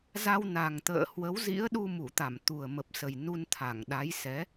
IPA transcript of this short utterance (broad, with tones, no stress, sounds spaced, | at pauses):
z a˧ w n a˨˩ ŋ t̪ ə̰ː˧˨ h w ə˨˦ w z ḭ˧˥ ə̯ ɗ u˧ m u˧˩ t̪ a˧˩ m t̪ u˨˩ ə̯ m ə˨˩ p̚ s ə˨˩ j n u˧ n t̪ʰ a˧˩ ŋ ɗ a˨˦ j s ɛ˨˦